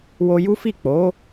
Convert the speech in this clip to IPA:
w o˧ j u˦ f i˦˨ k͡p o˨˦

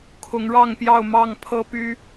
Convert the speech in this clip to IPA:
kʰ ʊ˨˦ ŋ ɻ ɑ˥˨ ŋ p j ɑ˥˨ ʊ̯ m ɑ˥˨ ŋ pʰ ɤ˦ p y˦

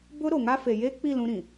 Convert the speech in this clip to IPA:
b ʊ˦ ɾ o˨ ŋ a˦ f e˨ j e˦ k͡p i˦˨ l ũ˦ ɾ ĩ˨

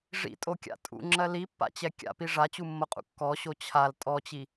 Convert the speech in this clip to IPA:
ʐ ḭ tʼ o kʲ a̰ tʼ ṵ ŋ͡ǁ ɜ l i pː a̰ t͡ɕ ɛ kʲ a̰ p i ʐ a t͡ɕ u mː o qʼ ṵ kː ɔ ɕ o t͡ɕʰ a l tʼ ɔ t͡ɕ i

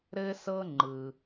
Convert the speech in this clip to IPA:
ɾ ɘ˧ s ɤ˧ ŋ͡ǃ ɯ˩

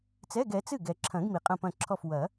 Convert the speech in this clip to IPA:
t͡s ɛ˧˥˧ ɡ ɛ˩˥ t͡s ɨ˥˩ ɡ ɛ˨ ǁʰ ɐ̃˨˩˦ ɡ m i˨ qʼ ɐ̃˥˩ p ɐ̃˥˩ ǁʰ ɔ˥˩ f w ɐ˨˩˦

